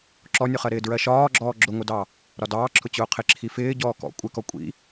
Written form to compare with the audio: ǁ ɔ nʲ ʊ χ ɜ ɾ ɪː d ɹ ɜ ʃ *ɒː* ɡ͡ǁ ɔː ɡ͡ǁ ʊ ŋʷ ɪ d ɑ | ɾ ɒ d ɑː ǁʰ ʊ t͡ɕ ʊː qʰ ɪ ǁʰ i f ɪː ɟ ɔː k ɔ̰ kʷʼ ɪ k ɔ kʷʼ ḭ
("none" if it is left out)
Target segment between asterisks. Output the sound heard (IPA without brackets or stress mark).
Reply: ɒː